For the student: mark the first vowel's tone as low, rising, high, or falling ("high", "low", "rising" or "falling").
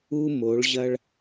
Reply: high